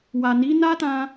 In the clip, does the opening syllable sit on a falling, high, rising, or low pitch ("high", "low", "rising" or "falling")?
low